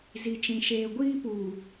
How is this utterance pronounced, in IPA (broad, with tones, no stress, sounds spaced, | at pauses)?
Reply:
z i˨ t͡ʃ ĩ˨ ʃ eː˨ ɡʷ iː˦ p uː˨